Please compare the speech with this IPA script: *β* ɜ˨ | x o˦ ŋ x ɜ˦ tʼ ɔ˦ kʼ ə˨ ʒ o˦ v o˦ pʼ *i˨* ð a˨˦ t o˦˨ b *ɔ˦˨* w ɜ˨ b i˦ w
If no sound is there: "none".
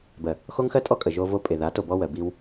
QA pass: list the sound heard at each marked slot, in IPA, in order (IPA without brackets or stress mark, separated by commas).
b, e˨, ɔ˦